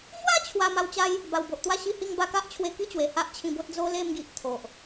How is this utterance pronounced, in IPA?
m w a˦ t͡ɕʰ w a˧ m a˧ w t͡ɕ a˦ j | b a˨˩ w b o˨ ʔ t̪ w a˥˧ ɕ i˥˧ h i˥˧ ŋ b a˧ k a˦ ʔ t͡ɕʰ w e˧ k i˥˧ t͡ɕ w e˨˩ h a˦ ʔ t͡ɕʰ ĩ˧ b o˦ t̚ d͡z o˦ l e˥˧ m ɡ i˨ ʔ t̪ʰ o˨ ʔ

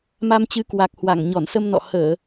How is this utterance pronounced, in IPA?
m a˧ m t͡ɕ ɨ˨˦ k w a˨˩ k̚ h w a˧˩ ŋ ɲ ɔ˧˩ n s ə˧ m n ɔ̰˧˨ h əː˧˩˨

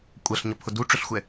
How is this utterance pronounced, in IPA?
kʷʼ ɜ ɬ ɲ ʌ pʰ ʊ d u ʈ͡ʂ ʊ ɬ xʷ ɛ

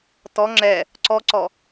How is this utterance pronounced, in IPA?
t ɔ ŋ͡ǁ ɛ | ǀ ɔ ǀ ɔ

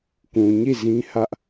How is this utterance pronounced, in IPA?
k ũ˨ ɲ i˦˨ z ĩ˦ h ä˦ ʔ

